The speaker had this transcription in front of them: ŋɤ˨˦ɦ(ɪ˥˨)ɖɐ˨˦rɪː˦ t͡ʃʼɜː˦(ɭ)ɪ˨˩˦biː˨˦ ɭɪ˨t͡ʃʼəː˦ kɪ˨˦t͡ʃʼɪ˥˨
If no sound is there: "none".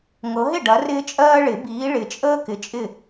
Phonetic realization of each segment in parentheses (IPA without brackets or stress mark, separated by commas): ɪ˥˨, ɭ